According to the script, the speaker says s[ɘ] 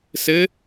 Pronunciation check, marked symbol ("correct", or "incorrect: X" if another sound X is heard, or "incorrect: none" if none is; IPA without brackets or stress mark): correct